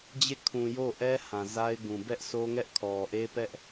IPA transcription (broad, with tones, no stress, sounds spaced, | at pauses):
d͡ʑ e˦˨ kʰ ũ˨ j o˦˨ ʔ ɛ˦ h ã˨ z a˦ ɪ̯ ɡ ũ˨ b ɛ˦ ʔ sʰ o˦ ŋ ɛ˦ ʔ kʰ ɔ˨ ʔ e˦ p ɛ˦ ʔ